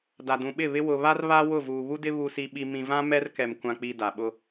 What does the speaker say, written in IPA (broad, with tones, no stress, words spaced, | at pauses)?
da˨dũ˨ɓɪ˦˨βɪ˦ wʊ˨βa˦r βa˦ wʊ˦˨vuː˨βu˦dɪ˦ βu˨si˨ɓi˨ mĩ˨vã˦ mɛ˦rkɛ˨m kʷã˨k͡pi˨ da˨ɓʊ˦